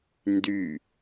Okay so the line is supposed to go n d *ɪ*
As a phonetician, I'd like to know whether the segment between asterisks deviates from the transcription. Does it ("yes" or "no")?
yes